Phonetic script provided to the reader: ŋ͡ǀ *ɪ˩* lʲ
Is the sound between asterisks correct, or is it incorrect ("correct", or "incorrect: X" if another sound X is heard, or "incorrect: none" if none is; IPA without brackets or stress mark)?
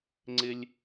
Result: incorrect: ɪ˦